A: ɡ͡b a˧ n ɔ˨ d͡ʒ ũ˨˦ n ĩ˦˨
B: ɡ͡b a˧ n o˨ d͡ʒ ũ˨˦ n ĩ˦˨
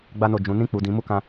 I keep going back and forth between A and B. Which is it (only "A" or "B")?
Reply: B